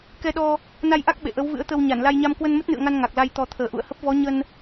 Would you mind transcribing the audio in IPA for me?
k ɛ˧ ɗ ɔ˧ | n a˧ j ʔ a˦˥ k̚ ɓ ḛ˧˨ ʔ ə˨˦ w v ɨ̰˧˥ ə̯ t̪ ə˧ w ɲ a˧˩ n l a˧ j ɲ a˧ m k w ə˧ n m ə˦˥ t̚ n ɨ̰˧˨ ə̯ ŋ a˧ n ŋ a˨˩ k̚ l a˧ j t̪ ɔ˨˩ t̪ʰ əː˨˩ ʔ ṵ˧˨ ə̯ h ə˦˥ p̚ v ɔ˨˦ ɲ ə˧ n

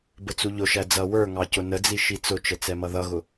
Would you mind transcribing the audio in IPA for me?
b ə t͡s u ʎ ʊ ʃ æ d͡z ʌ w ə˞ ŋ ɑ c ʊ n ə d͡z i ʃ i t͡s ʊ t͡ʃ ə t͡s ɛ m ʌ ð ʌ ɣ ʊ

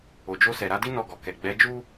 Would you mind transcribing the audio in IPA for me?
o˨ d͡ʒ o˧ s ɛ˨ ɾ a˨˦ d i˦ n ɔ˦˨ ɡ ɔ˨ k ɛ˨ ɡ͡b ɛ˨˦ d͡ʒ u˦

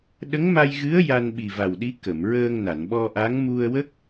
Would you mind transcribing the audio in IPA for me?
ɗ ə˧˥ ŋ m a˧ j ɣ ɨ˧˥ ə̯ j a˧ n ɓ i˨˩ v a˨˩ w ɗ i˧˥ k ə˨˩˨ m ɹ əː˧ ŋ n a˨˩˨ n ɓ ɔ˧ ʔ a˧˥ ŋ m u˧ ə̯ w ə˦˥ k̚

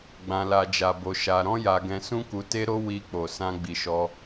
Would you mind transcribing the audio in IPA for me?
ɡ͡b ã˧ l a˧ d͡ʒ a˧ b o˧ ʃ a˧ ɾ ɔ̃˦ j a˧ ɡ ɛ̃˧ s ũ˦ k u˧ t e˦ ɾ o˦ w i˧ k͡p o˨ s ã˧ ɡ͡b i˧ ʃ ɔ˦

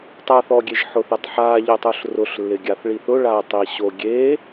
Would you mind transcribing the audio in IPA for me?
tˤ a θ ɔ ɡʲ e ʒ ħ ʊ θ e tˤ ħ a ʎ ɪ tˤ ʊ ɬ r ʊ ɬ lː ɪ ɡʲ a θ ɭ i θ ʊ ɭ a tˤ i ɕ o ɡʲ e

